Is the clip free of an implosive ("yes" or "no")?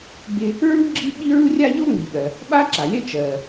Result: no